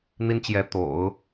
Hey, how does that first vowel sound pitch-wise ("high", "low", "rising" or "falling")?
high